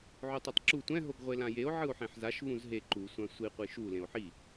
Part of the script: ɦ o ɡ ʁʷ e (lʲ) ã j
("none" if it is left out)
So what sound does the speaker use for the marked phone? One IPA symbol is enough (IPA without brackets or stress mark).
l